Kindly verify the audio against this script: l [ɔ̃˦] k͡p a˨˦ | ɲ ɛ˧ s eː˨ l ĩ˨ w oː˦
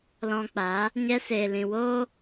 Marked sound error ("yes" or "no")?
yes